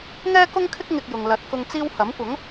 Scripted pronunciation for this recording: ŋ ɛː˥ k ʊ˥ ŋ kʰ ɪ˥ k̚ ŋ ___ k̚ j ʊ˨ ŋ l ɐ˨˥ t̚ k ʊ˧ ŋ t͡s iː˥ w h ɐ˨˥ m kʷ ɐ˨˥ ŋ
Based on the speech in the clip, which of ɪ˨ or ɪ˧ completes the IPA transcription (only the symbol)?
ɪ˧